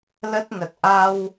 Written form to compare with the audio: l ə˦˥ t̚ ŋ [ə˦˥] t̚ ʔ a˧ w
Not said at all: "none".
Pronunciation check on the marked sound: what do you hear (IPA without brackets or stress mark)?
ə˨˩